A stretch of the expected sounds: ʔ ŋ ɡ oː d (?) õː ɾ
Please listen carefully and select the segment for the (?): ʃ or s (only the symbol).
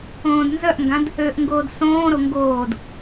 s